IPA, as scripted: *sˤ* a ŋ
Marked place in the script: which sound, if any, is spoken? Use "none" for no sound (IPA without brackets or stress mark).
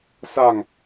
s